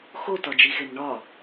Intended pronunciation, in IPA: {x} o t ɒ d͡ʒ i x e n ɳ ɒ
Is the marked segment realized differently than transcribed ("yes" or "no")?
no